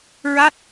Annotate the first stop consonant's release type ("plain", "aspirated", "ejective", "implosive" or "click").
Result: plain